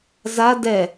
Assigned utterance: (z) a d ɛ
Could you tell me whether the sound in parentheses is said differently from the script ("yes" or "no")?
no